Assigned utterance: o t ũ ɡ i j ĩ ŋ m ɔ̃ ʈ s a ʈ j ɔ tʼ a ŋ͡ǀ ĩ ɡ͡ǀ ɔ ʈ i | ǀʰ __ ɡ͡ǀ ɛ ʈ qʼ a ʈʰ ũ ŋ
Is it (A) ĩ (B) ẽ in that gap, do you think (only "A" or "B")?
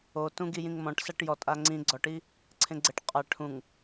B